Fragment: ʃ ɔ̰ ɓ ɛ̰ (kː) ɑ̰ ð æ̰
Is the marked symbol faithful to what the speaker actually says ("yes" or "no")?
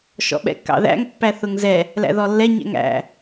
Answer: yes